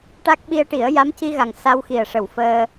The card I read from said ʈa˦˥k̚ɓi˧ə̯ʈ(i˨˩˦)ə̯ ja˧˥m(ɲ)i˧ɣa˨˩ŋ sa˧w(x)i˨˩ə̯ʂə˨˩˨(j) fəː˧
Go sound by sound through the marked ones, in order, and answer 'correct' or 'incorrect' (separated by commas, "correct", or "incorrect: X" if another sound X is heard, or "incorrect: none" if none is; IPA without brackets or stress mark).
correct, incorrect: c, correct, incorrect: w